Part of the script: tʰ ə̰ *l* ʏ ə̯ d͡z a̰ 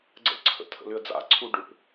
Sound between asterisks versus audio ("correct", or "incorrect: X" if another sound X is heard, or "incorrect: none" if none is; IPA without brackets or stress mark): correct